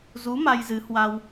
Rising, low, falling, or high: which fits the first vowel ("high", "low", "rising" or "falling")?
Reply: rising